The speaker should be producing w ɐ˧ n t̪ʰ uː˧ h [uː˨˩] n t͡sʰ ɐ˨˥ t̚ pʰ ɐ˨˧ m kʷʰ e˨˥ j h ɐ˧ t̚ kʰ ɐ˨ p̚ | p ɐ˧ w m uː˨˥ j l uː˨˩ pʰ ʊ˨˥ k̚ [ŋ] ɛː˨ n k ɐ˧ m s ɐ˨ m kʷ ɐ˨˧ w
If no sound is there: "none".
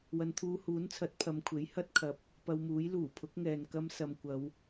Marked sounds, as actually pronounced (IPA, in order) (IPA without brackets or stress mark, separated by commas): uː˨˥, ŋ